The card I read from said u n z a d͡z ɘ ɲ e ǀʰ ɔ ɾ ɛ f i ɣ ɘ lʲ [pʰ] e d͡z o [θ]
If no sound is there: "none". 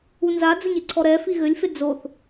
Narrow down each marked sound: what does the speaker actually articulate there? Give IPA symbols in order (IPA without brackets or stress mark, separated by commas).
f, θ